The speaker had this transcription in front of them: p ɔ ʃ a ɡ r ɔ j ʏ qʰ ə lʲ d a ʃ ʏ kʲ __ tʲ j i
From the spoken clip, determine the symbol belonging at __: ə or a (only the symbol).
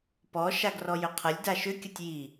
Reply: ə